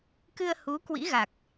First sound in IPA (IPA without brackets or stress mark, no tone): k